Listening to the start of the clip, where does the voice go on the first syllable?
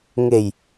low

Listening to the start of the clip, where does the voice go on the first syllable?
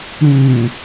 low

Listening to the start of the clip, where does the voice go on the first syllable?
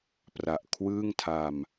low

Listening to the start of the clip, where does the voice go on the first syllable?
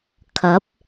rising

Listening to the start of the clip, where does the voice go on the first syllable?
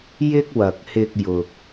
high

